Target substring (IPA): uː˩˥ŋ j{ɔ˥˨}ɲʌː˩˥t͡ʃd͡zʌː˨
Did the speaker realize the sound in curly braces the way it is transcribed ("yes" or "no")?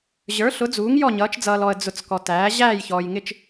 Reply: yes